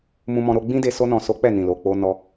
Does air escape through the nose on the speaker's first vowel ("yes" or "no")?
yes